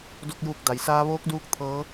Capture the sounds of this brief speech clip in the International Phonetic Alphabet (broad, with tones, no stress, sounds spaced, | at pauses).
d o˧ k̚ j uː˧˩ k̚ d a˩˧ j s aː˧˥ ʋ oː˧˥ k̚ d uː˧˥ k̚ t̪ʰ ɤː˧˥